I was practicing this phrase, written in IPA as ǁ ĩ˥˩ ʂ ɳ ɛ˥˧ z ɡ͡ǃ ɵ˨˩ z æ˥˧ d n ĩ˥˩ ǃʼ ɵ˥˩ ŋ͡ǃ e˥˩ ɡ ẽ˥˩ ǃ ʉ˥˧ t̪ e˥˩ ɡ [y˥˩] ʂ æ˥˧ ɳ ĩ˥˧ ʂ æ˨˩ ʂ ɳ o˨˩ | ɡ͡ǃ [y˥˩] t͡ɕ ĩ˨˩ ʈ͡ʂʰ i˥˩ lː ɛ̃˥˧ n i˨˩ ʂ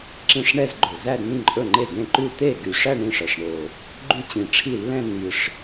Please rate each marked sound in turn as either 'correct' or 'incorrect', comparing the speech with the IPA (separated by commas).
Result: incorrect, incorrect